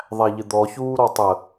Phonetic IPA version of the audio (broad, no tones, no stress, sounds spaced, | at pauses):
ðˤ æ ʎ ɪ d̪ ɔ ç uː ɾ ɔ tˤ ə